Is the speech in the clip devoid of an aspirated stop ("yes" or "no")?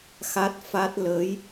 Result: yes